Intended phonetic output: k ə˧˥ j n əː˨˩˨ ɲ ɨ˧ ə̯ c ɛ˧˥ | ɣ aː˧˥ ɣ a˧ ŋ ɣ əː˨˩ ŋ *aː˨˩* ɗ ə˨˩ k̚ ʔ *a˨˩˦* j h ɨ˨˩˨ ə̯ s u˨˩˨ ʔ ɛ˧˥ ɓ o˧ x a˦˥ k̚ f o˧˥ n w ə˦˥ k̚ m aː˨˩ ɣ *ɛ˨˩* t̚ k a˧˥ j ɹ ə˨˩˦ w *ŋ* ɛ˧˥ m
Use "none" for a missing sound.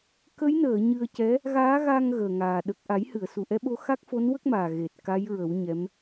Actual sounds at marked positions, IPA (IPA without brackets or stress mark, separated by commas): aː˨˩, a˨˩˦, e˨˩, ɲ